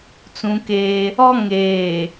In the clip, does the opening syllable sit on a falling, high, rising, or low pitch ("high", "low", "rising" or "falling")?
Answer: high